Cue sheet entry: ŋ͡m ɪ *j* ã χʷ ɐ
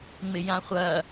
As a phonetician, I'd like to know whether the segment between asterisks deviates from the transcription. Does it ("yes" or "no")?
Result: no